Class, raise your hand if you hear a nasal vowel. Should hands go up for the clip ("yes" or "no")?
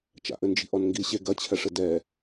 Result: no